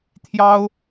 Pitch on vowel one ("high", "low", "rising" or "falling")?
high